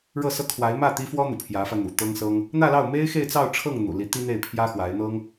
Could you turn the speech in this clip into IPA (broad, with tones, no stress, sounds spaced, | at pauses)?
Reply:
ɻ ɤ˥˩ s ɤ˥ kʰ w a˧˥ ɪ̯ m ä˥˩ t̪ i˥ f w ɔ˥ n̪ ṵ˨˩ pʰ j ä˧˥ f ä˧ n̪ ṵ˨˩ t̪ ɤ˥ ŋ s ɤ˥ ŋ | n̪ ä˥˧ l ɑ˥˩ ʊ̯ m e˥ ɪ̯ x e˥˧ ɪ̯ t͡s ɑ˥˧ ʊ̯ ʈ͡ʂʰ ɤ˥˩ ŋ n̪ ṵ˨˩ l i˧˥ t̪ i˥ n̪ e˥˩ ɪ̯ pʰ j ä˥ x w a˧˥ ɪ̯ n̪ ɤ˥ ŋ